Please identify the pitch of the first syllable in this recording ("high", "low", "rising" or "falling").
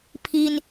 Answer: high